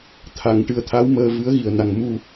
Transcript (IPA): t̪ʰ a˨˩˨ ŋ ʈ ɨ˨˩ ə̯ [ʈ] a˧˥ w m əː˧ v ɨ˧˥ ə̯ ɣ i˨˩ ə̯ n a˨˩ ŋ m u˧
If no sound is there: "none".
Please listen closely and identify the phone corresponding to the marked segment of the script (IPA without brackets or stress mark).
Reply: t̪ʰ